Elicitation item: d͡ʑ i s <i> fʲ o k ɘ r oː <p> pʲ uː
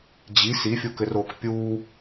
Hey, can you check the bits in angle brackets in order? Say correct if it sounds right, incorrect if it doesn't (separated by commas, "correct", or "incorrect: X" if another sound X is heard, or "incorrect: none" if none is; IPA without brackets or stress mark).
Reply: correct, incorrect: k